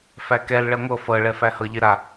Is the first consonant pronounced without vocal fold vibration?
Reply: yes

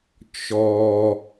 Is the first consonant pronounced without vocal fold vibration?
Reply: yes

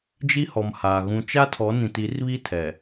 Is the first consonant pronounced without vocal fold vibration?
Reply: no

